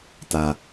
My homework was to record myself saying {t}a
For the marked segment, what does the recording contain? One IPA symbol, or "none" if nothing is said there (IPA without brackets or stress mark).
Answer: t